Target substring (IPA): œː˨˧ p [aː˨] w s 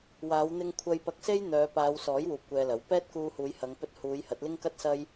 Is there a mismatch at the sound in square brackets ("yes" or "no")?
yes